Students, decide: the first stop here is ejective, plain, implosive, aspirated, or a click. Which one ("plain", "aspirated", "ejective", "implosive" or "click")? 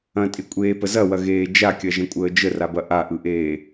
ejective